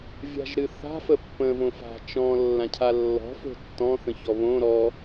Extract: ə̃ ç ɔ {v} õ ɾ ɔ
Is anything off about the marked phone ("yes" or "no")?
yes